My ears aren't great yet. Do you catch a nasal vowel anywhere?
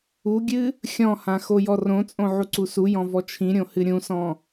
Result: yes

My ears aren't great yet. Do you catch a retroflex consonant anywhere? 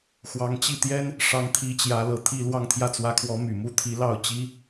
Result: yes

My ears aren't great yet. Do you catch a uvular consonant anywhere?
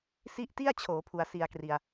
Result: no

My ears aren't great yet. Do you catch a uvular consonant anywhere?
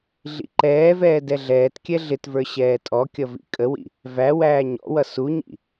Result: no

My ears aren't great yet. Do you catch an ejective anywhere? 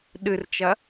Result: no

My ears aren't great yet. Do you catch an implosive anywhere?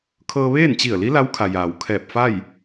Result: no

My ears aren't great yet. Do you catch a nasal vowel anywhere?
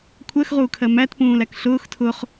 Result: yes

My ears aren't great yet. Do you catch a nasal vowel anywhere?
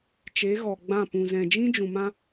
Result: yes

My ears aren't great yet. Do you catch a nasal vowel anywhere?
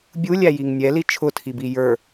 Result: no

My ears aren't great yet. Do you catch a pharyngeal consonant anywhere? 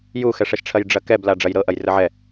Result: yes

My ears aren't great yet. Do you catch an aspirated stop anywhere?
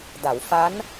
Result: no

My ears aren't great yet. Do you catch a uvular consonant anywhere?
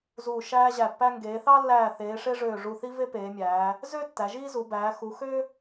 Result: no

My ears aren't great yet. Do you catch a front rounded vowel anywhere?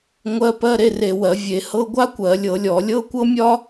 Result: no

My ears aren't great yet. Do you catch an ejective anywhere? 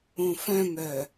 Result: no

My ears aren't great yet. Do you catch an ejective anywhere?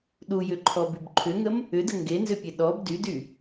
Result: no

